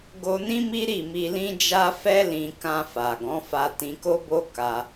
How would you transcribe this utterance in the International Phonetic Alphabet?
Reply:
ɡ o˧ n ĩ˦ m i˦ ɾ i˦˨ m i˧ l ĩ˦ d͡ʒ a˧ f ɛ˧ l ĩ˨ k ã˧ f a˨ ɡ ɔ̃˨˦ f a˧ t ĩ˧ k o˦ b o˦ k a˧

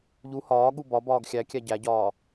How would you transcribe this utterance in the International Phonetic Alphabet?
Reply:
ʎ u h ɒː ɠ u b ɒ b ɒː ɡ xʲ æ kʲ æ ɟ æ ɟ ɒː

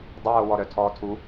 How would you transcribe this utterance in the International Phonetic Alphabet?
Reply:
dˤ ə w o w ɔ ɾ œ tʰ ɔː tʰ u

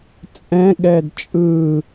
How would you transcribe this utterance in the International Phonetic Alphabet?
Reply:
t͡sʼ ɛ̃ ɠ ɛ d t͡ʃʼ ɯ

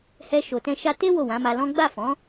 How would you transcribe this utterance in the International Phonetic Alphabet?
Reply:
h ɛ˧ ʃ o˨ t ɛ̃˧ ʃ a˧ t e˦ w o˦˨ w ã˨˦ m a˧ l ɔ̃˦ ɡ͡b a˦˨ f ɔ̃˨˦

